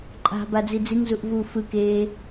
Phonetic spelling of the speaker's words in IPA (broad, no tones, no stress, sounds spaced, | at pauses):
ǃʼ a̤ b a d͡z i d͡z i ŋ z u ʔ v u f ɯ k e